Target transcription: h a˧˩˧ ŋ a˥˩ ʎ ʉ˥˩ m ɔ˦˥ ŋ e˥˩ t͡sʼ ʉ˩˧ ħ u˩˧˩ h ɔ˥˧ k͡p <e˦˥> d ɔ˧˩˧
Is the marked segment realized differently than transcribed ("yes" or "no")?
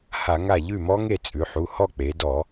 yes